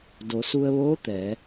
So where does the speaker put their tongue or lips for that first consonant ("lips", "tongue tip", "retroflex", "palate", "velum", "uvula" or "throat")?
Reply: tongue tip